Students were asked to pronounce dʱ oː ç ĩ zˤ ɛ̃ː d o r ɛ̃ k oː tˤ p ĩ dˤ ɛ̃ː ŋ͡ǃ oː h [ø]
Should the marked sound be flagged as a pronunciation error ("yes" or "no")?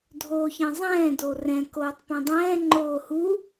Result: yes